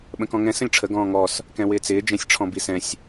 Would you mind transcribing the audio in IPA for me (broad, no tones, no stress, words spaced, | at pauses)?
ɓə̃kɔ̃ŋɛ̃ sə̃lʲʈ͡ʂʰə ɡɔ̃ːŋɔs | kɛ̃wɪːt͡sɪː d͡ʒɛ̃sʲʈ͡ʂʰɔ̃bisɛ̃sʲ